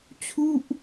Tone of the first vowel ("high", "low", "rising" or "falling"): falling